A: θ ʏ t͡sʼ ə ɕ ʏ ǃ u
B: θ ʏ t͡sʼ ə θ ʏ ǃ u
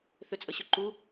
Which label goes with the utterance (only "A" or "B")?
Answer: A